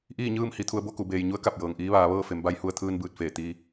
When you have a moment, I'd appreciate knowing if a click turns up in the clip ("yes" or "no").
no